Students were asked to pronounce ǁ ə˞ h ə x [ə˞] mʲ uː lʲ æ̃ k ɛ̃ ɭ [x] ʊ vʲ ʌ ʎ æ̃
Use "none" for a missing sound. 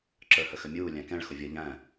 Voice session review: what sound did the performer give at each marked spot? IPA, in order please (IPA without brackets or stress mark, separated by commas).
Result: ə, x